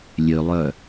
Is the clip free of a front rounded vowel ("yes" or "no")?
no